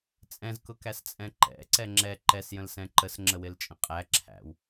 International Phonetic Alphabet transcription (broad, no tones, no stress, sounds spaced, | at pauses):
t͡sʼ ɛ̃ z k ʊ k æ s t͡sʼ ɛ̃ ǃ ɛ̰ ǀ ɛ ŋ͡ǁ ɛ ǃ ɛ s j ə̃ l s ɛ̃ ǃ ə s ŋ͡ǁ ə w ɪ l t͡ʃʼ ə̃ qʼ æ ǁʰ æ̰ w